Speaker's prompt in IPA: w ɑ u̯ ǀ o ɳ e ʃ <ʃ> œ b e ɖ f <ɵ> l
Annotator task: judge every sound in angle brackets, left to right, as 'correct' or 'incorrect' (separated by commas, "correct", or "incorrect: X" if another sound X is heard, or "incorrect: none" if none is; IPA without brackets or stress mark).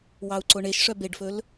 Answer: incorrect: ʂ, correct